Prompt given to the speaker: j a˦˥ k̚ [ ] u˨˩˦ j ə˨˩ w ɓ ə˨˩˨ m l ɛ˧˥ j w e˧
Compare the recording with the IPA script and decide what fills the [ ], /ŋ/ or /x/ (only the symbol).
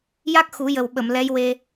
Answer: x